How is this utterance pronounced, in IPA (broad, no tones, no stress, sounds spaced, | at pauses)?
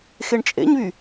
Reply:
x e ɳ t͡ʃʼ ḛ ɲ β y